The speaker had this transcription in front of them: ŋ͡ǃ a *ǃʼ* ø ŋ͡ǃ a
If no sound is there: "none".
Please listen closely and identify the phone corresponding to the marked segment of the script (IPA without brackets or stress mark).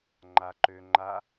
ǃ